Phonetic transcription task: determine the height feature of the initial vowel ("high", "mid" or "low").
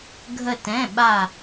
mid